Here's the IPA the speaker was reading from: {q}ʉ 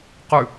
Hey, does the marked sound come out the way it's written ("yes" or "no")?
yes